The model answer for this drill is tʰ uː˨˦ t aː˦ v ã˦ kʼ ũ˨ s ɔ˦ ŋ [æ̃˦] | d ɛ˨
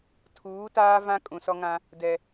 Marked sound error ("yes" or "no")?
yes